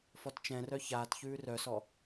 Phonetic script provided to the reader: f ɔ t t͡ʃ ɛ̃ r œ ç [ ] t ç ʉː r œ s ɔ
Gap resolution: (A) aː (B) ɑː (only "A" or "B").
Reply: A